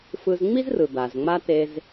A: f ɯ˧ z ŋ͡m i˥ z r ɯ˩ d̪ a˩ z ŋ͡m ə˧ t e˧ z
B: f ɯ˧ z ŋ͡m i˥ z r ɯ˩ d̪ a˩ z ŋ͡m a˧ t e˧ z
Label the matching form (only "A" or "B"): B